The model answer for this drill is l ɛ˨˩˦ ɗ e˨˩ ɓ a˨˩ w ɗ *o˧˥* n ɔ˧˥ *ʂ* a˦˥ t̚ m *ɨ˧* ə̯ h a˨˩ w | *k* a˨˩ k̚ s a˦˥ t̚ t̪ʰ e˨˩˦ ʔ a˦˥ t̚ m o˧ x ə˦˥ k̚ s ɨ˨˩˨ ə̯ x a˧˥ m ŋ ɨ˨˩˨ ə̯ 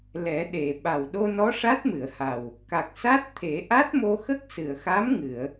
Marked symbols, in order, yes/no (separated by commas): no, yes, no, yes